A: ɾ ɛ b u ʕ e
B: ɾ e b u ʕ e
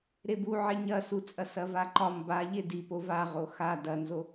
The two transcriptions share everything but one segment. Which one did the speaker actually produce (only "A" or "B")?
B